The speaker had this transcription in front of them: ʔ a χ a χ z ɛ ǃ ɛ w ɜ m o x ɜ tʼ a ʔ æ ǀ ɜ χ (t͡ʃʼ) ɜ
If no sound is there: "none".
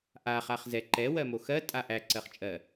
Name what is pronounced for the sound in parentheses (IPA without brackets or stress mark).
t͡ʃʼ